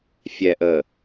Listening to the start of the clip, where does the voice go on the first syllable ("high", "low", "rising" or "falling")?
low